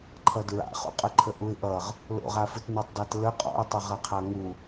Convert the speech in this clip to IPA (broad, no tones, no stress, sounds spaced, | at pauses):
ǃʰ ʌ d ɹ a̰ χ ṵ qʼ ə ǃʰ ə ʔ u ɪ̯ ʔ ʌ ʁ | l o̰ ʁ a f ɯ t n ə˞ tˤ d a t l ə qʼ ɔ̰ ʊ̯ tˤ ʌ ʁ ʌ qʰ a ŋ u